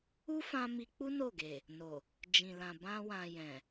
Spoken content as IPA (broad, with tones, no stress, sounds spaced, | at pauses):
u˦ f ã˧ m i˧ k͡p u˦ n o˦˨ ɡ e˨ | n o˨ | d͡ʒ ĩ˨ l ã˨ b ã˧ w ã˨ j ɛ̃˨